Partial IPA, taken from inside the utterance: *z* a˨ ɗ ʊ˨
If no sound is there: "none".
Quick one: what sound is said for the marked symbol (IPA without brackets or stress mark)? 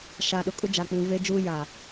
ʃ